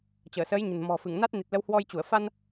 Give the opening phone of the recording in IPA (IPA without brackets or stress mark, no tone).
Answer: t͡ɕ